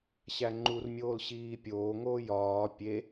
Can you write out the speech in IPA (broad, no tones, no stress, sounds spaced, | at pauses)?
ɕ æ ŋ͡ǃ u r mʲ oː l ɕ iː pʲ oː ŋ oː j ɒː pʲ e